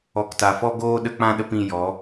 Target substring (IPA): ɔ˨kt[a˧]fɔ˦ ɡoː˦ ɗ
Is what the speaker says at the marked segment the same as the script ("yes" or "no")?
no